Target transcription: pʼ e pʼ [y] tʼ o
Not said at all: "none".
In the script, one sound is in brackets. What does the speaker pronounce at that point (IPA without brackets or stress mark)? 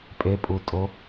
u